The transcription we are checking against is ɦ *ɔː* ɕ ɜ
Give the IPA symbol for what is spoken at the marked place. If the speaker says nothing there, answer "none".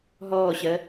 ɔː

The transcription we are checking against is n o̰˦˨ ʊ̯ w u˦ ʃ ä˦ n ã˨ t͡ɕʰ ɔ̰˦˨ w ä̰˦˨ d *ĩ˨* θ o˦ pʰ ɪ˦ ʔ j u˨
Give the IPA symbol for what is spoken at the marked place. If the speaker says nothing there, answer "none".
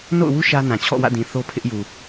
ĩ˨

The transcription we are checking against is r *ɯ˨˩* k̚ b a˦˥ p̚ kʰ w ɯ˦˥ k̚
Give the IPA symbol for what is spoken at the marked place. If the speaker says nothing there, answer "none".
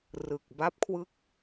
ɯ˨˩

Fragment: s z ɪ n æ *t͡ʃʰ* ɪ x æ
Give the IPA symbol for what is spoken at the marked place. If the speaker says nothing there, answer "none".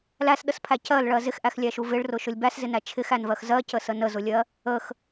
t͡ʃʰ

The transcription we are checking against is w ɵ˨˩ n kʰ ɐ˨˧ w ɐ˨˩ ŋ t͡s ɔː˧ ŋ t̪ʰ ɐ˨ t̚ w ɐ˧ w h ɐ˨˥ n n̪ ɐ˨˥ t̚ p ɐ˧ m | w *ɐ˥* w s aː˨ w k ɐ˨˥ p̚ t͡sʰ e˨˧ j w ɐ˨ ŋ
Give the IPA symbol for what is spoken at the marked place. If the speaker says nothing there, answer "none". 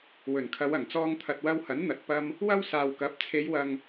ɐ˥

